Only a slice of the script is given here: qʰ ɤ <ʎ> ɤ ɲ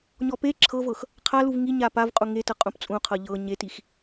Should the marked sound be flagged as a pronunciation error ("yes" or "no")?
no